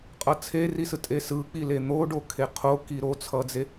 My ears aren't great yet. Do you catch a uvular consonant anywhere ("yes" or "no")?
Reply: yes